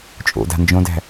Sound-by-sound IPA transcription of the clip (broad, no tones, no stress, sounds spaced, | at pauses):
t͡ʃʼ o̰ d a̤ n d͡ʒ õ d æ̤